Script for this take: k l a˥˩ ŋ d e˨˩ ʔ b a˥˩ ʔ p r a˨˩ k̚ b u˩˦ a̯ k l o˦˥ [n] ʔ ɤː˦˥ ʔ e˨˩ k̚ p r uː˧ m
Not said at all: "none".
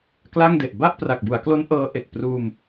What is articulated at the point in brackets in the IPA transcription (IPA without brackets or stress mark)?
n